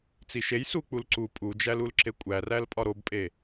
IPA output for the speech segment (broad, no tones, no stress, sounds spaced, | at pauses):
t͡s i ʃ e j s u k͡p u l ǀ u pʼ u d͡ʒ æ l u l ǁ e kʷʼ æ r æ l pʼ ɒ ɾ o b pʼ e